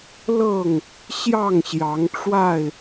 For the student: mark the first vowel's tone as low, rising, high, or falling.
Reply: falling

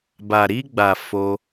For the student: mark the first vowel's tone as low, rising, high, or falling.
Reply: low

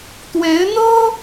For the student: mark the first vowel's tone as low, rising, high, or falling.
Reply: rising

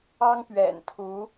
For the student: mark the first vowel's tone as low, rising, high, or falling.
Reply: high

